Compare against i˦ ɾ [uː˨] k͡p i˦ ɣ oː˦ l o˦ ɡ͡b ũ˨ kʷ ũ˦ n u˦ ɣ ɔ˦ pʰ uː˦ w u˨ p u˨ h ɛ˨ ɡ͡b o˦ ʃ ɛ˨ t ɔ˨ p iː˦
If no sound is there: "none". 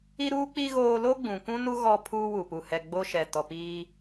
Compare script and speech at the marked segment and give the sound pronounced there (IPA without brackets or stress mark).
uː˦